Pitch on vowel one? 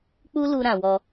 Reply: high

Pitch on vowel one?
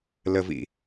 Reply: low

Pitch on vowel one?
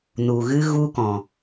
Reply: low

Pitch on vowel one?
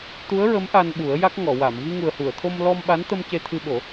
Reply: rising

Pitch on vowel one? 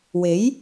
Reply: rising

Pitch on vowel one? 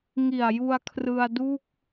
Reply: low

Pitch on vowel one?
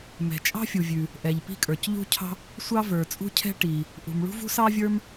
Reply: low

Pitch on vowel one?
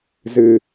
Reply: low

